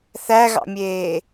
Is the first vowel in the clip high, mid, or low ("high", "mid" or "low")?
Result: low